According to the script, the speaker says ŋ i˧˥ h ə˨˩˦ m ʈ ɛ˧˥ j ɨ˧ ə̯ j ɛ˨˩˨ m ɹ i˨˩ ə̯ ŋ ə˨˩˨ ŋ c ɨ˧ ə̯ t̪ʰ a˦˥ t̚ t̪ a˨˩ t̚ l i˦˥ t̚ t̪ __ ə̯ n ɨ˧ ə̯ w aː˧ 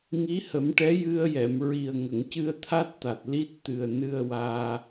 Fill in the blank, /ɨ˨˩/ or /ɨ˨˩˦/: ɨ˨˩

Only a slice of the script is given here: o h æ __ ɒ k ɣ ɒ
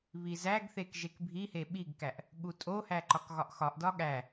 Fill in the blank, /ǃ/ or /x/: ǃ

